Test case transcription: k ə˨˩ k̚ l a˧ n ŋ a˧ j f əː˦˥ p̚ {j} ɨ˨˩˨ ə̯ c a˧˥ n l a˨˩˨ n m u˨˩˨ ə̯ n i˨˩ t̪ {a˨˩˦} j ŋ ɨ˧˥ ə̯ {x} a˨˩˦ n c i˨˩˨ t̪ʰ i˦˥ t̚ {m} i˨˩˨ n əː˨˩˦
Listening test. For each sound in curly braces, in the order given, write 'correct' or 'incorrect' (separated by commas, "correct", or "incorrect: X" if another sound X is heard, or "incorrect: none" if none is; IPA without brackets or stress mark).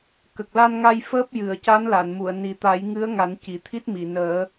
correct, correct, incorrect: ŋ, correct